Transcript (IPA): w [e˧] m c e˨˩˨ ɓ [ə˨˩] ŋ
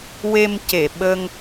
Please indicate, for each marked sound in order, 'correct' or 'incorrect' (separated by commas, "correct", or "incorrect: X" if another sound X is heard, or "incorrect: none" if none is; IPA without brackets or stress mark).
correct, incorrect: ə˧